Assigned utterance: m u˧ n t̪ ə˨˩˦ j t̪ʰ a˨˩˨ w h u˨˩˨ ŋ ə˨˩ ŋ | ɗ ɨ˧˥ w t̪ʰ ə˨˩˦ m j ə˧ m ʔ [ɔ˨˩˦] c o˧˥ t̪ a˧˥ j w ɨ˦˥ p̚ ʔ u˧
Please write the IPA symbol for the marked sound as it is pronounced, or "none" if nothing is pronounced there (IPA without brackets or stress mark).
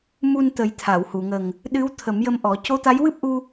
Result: ɔ˨˩˦